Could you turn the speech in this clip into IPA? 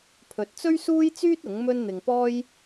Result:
pʰɵ˨t̚t͡sɵ˥ɥsuː˥jt͡syː˥t̚ ʊ˨˥ŋmɵ˥n n̪ɪ˧ŋpɔː˥j

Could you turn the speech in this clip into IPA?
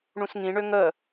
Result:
ɳũsŋĩɳø ŋə

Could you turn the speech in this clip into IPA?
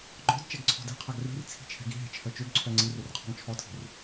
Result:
ɡ͡ǃɔ̤d t͡ʃɛɡǀʰɔ̤dɛ̤qʰaɡ ri̤r t͡sʰi̤t͡ʃʰɛ̤ɡi̤ɦɛ̤ t͡ʃʰœt͡ʃøɡǀʰœ ŋ͡ǀirir qʰɔ̤ŋt͡ʃʰɔtʰi̤r

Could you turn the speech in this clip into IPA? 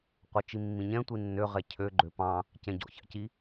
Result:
qʷœt͡ʃimːĩɲɛ̃ tʷinːø ʁɛcʰø ɡ͡ǃøpɑ̃ | cɛ̃ɟɔ̰çɑ̰ci

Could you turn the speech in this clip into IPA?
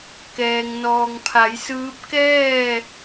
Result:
kɛː˩ŋ nɔː˩ŋpʰa˩˧jsɯː˧˥p̚ kɛː˥˨

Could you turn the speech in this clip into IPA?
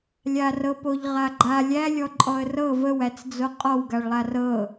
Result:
lʲarɤpoʎ ʁaɡ͡ǃa lʲælʲɔ ǃʼɔə̯rɤ vəwæt͡sd͡zo qʼɔwɡaɭlˠa rɤ

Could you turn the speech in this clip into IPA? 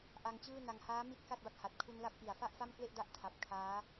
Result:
ʔa˧ŋt͡ɕɯː˥˩na˧ŋ haː˦˥mi˦˥t̚ ka˥˩t̚ba˥˩k̚ha˨˩t̚ kʰu˧nla˦˥p̚ʔi˩˦a̯ fa˥˩ʔfa˥˩mkle˥˩ʔda˦˥ʔ tʰa˨˩p̚ kʰaː˦˥

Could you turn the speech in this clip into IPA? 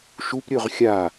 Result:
ʃupɾʲɵʁ xʲa

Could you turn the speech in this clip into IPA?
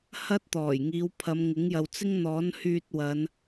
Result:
hɐ˥t̚t̪ɔː˨˩jŋiː˨˧w pʰɐ˨˧mŋɪ˨˥ŋjɐ˨w t͡sɪ˥ŋn̪ɔː˨˥nhyː˧t̚wɐ˨˧n

